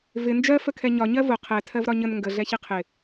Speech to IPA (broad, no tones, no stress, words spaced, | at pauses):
vɪ nd͡ʒɜfəkʰɛ ɲɒɲɜ vʊ qʰɛ tʰɜvɾɒɲən ŋɡəɮɛ çiqʰɪ